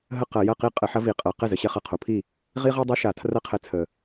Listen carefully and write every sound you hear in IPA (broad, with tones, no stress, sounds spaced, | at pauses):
ɦ ə˥˩ q ɐ˧˩˧ j ɐ˥˩ q i˦˥ qʼ ə˧˩˧ ħ ɐ˦˥ v i˧˩˧ qʼ ɐ˧˩˧ q ɛ˥˩ z ə˨˩ ɕ ɛ˦˥ χ ɐ˨˩ qʰ o˨˩ pʰ i˥˩ | ʁ i˦˥ ʁ i˦˥ dˤ ɛ˦˥ ʃ a˧˩˧ tʰ r ɐ˦˥ qʰ ɛ˧˩˧ t͡sʰ ə˨˩